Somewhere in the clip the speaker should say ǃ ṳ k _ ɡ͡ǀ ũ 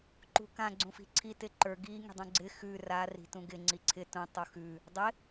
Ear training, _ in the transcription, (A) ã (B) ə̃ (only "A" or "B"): A